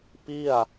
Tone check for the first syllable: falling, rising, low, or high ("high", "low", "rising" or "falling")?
falling